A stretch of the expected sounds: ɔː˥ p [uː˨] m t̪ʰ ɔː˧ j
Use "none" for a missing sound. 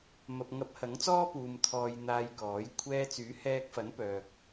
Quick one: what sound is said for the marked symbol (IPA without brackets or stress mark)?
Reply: uː˨